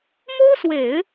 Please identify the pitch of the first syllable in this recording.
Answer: high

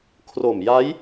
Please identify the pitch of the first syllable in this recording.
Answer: low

